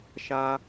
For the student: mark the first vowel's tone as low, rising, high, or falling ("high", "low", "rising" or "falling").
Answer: high